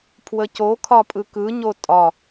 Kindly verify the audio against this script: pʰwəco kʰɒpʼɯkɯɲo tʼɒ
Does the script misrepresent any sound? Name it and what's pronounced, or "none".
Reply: none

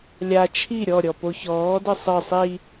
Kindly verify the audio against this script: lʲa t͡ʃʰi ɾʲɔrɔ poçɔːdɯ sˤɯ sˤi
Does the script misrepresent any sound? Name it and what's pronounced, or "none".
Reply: r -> ɾʲ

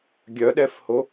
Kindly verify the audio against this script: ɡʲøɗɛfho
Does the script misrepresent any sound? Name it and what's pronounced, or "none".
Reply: ø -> œ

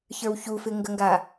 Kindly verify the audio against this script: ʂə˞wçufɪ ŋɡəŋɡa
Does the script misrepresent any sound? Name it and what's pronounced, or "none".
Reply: ʂ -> ç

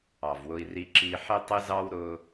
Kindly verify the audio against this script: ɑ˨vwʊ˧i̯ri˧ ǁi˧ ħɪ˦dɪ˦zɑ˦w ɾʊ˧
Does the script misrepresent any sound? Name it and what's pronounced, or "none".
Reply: d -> tˤ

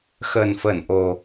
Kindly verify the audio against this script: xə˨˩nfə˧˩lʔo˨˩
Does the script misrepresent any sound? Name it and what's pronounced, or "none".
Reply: l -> n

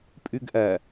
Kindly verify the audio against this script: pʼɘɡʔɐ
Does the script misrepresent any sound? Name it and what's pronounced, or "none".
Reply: ɘ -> ʉ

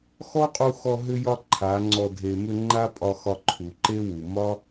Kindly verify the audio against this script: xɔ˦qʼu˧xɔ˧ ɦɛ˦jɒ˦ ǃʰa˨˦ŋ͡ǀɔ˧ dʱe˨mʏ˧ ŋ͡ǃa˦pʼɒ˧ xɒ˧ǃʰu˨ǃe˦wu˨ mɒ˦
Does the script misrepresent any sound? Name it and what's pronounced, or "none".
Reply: ɛ˦ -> ʏ˦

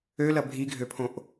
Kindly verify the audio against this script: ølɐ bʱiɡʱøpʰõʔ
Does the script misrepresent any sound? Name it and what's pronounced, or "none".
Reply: none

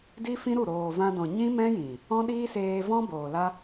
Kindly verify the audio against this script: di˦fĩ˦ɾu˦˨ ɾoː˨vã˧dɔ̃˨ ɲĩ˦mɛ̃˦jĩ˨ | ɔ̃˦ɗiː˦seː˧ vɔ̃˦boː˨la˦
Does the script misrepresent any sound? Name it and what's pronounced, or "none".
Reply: none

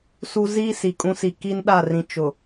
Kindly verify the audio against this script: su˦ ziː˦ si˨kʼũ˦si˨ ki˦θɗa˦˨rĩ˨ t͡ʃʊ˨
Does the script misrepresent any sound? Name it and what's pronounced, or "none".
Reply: θ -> n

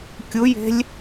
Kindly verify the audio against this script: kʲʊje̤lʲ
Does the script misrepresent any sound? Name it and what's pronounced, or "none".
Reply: none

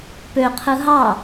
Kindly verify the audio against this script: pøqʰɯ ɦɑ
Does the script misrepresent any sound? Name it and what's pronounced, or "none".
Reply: none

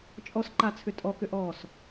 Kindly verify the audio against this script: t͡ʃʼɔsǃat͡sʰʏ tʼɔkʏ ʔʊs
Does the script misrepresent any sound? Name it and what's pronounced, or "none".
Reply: ʊ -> ɔ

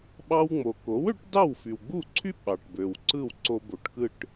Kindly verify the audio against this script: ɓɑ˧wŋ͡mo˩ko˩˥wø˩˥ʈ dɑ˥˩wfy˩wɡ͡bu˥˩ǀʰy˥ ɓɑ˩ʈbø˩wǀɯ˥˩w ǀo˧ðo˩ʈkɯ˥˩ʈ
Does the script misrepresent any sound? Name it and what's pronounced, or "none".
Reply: ð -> b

